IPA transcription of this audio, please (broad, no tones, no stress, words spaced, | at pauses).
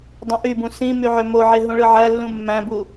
dˤũʔybũ sĩ myʕømoʕe ɦũɭɯʕælːũ mːæ̃bu